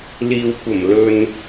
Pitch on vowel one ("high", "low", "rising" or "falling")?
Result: low